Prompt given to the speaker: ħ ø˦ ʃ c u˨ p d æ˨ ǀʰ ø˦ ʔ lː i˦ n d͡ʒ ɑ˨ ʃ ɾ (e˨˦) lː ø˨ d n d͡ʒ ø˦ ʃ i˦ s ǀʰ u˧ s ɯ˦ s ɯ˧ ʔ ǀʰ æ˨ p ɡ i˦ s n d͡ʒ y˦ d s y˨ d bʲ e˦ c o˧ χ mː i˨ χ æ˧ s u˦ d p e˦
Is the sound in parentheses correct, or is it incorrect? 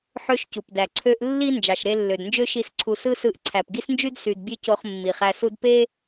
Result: incorrect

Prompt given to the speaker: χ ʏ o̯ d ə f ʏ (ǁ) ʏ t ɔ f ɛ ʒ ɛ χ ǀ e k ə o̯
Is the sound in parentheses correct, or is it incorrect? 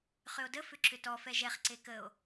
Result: correct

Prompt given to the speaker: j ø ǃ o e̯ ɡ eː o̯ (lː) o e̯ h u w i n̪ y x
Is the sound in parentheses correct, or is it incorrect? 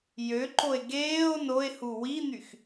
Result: incorrect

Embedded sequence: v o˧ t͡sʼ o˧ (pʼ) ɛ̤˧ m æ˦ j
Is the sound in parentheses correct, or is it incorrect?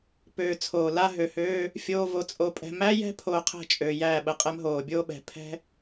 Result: correct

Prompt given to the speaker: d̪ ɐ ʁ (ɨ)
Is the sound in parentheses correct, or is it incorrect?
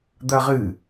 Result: correct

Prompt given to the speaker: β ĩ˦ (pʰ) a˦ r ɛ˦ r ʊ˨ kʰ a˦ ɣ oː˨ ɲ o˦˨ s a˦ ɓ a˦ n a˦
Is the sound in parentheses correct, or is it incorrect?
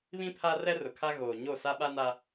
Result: correct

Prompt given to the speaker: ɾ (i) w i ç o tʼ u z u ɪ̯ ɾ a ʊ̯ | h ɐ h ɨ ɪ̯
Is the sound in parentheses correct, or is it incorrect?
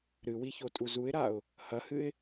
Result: incorrect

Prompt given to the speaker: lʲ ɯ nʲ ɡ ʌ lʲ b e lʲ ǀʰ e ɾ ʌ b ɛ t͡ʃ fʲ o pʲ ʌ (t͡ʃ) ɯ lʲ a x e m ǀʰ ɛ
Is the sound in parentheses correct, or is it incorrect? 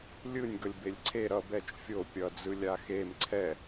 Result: incorrect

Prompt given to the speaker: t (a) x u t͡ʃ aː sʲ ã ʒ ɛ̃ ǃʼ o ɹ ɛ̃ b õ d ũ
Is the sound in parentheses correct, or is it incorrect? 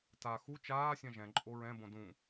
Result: correct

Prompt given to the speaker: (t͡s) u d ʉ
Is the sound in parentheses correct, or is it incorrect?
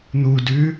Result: incorrect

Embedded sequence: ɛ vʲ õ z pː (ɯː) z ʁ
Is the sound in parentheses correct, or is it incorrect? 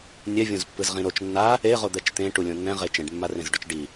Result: incorrect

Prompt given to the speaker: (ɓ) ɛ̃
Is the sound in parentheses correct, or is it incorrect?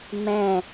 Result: incorrect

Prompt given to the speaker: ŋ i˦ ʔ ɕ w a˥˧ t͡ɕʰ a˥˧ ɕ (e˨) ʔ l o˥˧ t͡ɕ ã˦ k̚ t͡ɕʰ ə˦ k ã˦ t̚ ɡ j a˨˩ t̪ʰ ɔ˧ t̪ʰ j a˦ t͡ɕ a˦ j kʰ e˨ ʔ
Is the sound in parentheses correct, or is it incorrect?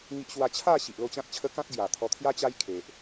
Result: incorrect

